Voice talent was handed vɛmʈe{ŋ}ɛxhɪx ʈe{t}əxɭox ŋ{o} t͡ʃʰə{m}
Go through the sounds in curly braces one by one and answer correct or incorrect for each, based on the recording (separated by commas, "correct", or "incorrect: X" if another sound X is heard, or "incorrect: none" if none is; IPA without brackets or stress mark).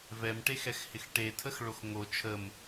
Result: incorrect: x, incorrect: tʰ, correct, correct